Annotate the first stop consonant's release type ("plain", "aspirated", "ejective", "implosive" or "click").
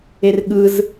implosive